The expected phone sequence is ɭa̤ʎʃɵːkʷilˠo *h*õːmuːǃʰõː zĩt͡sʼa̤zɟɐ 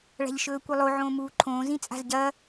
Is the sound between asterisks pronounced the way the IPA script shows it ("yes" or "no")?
no